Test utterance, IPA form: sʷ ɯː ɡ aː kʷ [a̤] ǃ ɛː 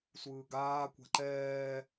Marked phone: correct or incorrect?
correct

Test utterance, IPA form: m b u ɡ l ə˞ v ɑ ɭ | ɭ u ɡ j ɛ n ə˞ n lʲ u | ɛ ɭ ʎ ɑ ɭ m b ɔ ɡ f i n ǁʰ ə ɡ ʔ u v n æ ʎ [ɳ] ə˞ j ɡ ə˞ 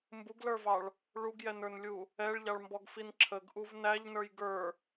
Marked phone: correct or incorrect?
incorrect: n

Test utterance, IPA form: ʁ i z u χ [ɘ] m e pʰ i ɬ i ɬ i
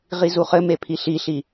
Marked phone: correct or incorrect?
correct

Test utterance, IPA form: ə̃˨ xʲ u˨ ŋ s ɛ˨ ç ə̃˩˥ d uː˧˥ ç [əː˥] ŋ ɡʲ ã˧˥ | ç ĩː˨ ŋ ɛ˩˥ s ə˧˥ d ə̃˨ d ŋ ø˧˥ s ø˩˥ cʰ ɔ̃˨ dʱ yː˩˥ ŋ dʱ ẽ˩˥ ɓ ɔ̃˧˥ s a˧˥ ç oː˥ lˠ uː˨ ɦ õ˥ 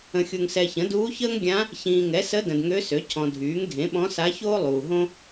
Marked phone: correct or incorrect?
correct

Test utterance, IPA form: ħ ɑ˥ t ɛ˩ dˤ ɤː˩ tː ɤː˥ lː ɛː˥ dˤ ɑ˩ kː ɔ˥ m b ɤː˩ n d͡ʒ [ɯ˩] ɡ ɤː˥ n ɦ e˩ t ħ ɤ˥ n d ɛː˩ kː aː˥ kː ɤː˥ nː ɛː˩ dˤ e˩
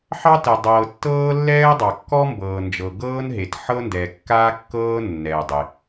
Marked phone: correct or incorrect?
incorrect: ɤ˩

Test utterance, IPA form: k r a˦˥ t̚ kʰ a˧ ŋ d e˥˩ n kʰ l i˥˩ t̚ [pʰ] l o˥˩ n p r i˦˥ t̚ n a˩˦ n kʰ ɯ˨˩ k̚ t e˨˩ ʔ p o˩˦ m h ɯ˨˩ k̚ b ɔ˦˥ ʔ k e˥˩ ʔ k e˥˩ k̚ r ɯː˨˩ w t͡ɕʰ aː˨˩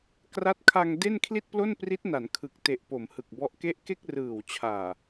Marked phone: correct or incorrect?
incorrect: p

